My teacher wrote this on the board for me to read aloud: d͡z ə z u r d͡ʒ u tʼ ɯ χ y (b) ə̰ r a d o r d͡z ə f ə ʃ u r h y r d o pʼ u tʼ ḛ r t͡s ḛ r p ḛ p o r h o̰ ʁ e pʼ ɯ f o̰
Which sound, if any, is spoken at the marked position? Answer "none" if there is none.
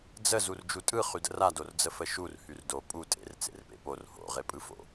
d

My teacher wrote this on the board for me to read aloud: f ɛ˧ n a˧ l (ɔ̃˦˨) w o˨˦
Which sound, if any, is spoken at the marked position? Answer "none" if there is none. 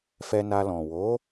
ɔ̃˨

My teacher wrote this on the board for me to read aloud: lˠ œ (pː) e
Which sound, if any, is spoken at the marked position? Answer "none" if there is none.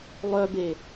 b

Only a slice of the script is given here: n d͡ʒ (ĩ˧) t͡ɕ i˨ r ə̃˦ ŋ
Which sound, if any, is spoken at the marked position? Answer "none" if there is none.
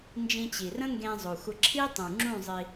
ĩ˧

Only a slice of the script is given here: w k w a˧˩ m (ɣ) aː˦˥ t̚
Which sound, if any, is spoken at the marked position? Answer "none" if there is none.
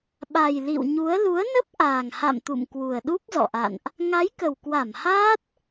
h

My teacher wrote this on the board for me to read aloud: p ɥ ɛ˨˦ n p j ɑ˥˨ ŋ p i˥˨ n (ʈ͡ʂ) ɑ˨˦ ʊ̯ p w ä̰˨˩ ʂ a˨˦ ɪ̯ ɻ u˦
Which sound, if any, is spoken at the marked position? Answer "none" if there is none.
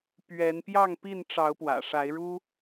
ʈ͡ʂ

